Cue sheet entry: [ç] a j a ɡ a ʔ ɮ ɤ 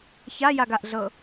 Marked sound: correct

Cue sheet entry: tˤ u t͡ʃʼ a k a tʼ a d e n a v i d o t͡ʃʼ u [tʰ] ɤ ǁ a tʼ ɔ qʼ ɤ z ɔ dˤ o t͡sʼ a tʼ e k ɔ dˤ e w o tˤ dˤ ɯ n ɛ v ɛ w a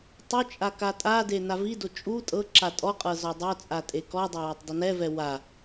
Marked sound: incorrect: tʼ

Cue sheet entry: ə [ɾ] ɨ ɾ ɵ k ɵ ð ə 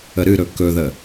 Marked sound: correct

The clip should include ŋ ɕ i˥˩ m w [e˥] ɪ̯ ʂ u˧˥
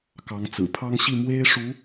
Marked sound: correct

